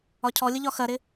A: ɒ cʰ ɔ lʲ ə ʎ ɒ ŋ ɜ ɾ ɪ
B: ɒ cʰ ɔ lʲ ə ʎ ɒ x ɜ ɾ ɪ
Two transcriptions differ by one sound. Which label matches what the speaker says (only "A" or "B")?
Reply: B